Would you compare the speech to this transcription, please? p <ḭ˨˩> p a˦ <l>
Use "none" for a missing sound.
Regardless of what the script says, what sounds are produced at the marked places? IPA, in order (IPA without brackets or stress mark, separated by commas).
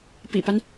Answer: ḭ˨˩, n